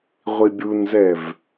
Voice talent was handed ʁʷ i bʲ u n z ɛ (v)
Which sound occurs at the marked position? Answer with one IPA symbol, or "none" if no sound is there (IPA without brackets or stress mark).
v